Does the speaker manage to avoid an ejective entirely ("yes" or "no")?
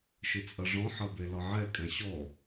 no